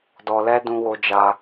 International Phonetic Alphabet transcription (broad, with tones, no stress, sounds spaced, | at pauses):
d ɔ˧ l ɛ˦ d ũ˦ w o˦ d͡ʒ a˦